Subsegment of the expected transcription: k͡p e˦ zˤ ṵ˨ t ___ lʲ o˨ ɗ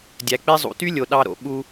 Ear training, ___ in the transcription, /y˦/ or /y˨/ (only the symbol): y˦